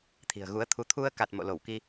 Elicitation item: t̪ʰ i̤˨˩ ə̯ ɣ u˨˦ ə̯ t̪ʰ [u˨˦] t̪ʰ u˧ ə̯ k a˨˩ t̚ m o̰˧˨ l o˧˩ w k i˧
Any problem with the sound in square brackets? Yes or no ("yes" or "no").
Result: no